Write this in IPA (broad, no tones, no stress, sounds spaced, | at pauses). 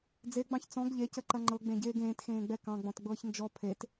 d͡z e ɡ͡b ɑ̃ ç t͡s ɔ̃ ɡ ʎ e c ə ǃ ɐ ŋ͡ǃ ɤ ɡ͡b ẽ ɟ eː ɡ ẽː t x ẽː ɡ͡b ɛ k ɑ̃ ɡ͡b ɔ̃ t ɡ͡b ɤː ç n d͡ʒ ɔ pʰ e t